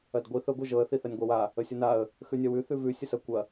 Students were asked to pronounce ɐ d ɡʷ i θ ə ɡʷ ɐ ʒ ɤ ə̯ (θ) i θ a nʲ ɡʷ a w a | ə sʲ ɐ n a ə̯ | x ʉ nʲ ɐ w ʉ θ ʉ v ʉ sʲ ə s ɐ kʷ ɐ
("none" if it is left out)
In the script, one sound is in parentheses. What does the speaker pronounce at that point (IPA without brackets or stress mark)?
θ